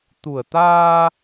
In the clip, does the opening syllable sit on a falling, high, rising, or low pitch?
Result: low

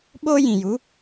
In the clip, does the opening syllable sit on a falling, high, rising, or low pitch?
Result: high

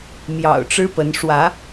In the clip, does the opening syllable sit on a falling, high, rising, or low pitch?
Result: low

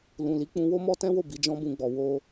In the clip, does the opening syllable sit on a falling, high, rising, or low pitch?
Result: low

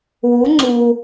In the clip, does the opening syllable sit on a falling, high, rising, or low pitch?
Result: rising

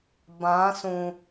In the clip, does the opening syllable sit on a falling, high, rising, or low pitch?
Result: rising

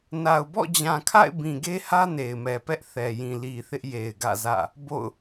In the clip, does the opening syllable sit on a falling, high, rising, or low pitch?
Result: low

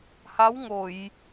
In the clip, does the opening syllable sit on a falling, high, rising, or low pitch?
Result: rising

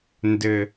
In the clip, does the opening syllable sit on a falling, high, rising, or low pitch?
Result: low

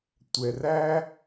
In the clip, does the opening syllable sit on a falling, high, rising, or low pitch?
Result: low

